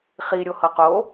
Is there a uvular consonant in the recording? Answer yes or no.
yes